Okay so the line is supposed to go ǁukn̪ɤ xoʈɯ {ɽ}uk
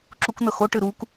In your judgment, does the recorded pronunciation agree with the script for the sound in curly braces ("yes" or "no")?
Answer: no